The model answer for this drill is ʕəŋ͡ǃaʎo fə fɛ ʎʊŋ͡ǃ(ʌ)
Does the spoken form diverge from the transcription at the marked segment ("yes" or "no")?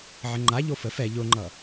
no